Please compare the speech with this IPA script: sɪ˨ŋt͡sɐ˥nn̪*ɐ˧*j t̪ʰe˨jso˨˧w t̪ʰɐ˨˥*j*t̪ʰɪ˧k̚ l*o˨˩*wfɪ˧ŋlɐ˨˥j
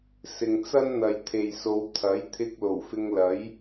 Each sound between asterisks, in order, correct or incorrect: incorrect: ɐ˨, correct, correct

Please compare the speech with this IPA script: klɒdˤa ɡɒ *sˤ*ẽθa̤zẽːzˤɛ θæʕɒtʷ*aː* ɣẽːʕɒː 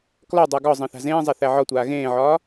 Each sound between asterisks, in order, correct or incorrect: incorrect: zˤ, correct

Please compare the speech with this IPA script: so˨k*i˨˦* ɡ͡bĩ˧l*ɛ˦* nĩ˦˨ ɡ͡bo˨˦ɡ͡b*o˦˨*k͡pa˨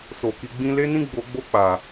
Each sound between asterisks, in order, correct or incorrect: correct, incorrect: e˦, correct

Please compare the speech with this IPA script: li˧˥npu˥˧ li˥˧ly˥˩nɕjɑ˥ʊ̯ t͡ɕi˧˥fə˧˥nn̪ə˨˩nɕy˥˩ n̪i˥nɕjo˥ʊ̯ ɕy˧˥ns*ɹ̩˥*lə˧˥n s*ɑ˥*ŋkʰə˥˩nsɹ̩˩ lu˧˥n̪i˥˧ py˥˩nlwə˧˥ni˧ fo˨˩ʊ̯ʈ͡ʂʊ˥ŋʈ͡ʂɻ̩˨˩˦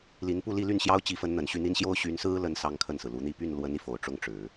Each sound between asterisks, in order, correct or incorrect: correct, correct

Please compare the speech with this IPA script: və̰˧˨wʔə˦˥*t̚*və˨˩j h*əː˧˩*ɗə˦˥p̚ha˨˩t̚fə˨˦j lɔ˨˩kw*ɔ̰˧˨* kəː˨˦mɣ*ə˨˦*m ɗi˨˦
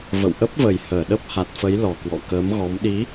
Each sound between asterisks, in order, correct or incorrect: incorrect: p̚, correct, correct, incorrect: ɔ˨˦

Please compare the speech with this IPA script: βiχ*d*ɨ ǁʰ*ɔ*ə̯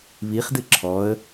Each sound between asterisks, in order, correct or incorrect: correct, correct

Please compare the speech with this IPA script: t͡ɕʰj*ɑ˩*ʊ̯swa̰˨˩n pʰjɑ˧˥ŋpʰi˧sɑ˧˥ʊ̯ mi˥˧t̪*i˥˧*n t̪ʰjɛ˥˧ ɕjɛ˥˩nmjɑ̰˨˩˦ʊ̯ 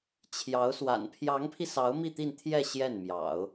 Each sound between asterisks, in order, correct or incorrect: incorrect: ɑ˧˥, correct

